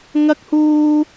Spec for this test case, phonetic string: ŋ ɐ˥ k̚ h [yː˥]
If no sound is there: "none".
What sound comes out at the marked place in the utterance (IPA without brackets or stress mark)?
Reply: uː˥